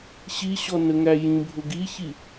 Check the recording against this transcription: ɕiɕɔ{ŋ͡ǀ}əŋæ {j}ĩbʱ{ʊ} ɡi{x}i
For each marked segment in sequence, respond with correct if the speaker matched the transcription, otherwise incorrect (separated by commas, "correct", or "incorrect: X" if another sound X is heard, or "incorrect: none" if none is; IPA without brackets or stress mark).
incorrect: n, correct, correct, incorrect: ç